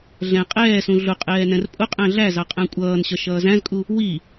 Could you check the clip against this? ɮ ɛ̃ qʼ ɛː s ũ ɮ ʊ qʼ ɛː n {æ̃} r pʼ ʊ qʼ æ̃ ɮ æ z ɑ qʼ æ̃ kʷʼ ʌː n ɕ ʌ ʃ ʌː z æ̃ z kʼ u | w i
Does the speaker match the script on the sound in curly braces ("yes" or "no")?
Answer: no